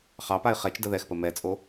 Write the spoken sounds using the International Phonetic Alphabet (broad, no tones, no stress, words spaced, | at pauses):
χɑpaɪ̯ χɛt͡ʃdə ðɛxpə mɛt͡sʼo